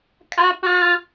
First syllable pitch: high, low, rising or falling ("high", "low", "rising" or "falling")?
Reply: high